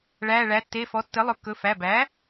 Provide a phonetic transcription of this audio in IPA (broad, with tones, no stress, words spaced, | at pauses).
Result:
ɭæː˩˧˩ɭæ˩˥ tːe˩˧˩fɔ˩˥ tːɘ˩˥ lˠɵ˩˥kːɵ˩˧˩ fæ˩˧˩bæː˩˥